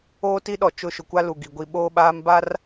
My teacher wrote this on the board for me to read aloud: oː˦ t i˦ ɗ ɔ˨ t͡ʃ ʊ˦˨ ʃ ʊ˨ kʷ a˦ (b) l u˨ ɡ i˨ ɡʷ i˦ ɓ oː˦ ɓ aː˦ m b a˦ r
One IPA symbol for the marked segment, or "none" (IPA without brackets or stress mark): none